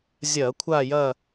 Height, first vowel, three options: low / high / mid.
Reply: low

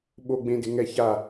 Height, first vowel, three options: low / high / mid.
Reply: mid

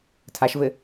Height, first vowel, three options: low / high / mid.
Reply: low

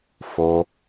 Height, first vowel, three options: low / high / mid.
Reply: mid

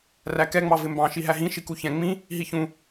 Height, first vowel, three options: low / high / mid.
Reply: low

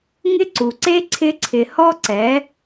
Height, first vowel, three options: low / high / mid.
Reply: high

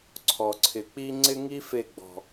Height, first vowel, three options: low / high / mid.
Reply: mid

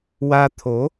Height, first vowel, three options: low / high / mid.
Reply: low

